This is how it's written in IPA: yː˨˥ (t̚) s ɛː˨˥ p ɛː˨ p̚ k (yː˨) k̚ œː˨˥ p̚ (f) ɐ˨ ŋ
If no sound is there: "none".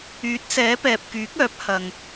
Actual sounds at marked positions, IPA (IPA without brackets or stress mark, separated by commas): t̚, yː˨˥, h